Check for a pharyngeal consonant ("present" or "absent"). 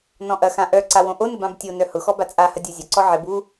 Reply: present